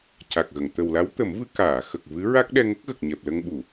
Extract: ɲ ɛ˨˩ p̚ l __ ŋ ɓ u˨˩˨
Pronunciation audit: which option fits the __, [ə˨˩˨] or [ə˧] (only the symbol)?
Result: ə˧